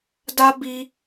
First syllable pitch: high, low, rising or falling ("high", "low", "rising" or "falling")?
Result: high